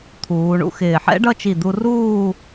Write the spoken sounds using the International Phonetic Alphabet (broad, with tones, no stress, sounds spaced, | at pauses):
t̪ʰ uː˩˧ ɳ ṵ˥ x ɪː˧˩ ħ ɛ̰˥ ɖ ʌ˥˧ t͡ʃ i˧˩ d̪ u˧ r uː˥˧